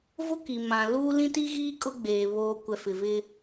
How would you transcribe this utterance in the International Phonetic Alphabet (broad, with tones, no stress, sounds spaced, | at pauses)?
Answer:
v ʊ˦ k i˨ m ã˨ l uː˦ l ĩ˦ t i˦ ɣ iː˦ kʼ ʊ˦ ɡ͡b eː˨ β oː˨ kʷ ɛ˨ f ɪ˨ v ɪ˦